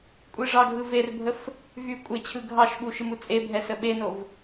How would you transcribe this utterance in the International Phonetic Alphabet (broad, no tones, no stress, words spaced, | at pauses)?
kʷʼiʐɑɡʱɯ verbʱəf | vy kʷʼet͡ɕʰɯ ɡʱɑʃɓu ʃɨmut͡sʼebʱɛ səɓenov